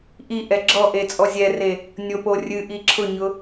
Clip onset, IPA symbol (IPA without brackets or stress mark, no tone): ʔ